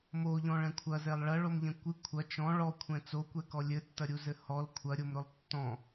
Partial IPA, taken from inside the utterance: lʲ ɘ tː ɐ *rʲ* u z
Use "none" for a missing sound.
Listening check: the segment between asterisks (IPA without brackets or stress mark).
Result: ɾʲ